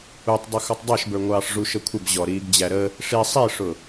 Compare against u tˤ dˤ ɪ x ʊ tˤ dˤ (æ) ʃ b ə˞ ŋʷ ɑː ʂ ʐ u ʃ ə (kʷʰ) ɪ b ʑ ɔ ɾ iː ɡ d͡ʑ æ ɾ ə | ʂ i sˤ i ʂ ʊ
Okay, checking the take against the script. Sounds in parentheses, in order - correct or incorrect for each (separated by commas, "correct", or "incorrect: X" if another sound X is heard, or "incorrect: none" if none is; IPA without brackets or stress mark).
correct, correct